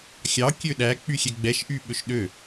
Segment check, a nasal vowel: absent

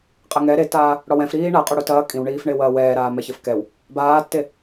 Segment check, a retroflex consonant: present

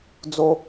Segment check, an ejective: absent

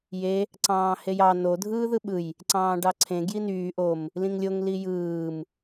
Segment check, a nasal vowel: present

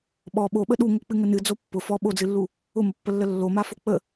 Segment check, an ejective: absent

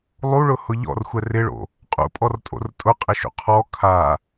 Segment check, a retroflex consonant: present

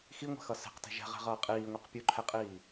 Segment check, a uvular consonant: present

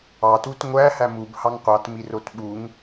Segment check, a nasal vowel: absent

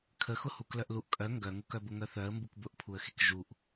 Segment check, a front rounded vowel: present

